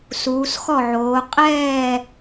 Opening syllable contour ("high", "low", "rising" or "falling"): rising